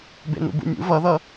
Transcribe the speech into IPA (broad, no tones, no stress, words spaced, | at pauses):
bḛnṵbṵmʲṵ vʌðʌ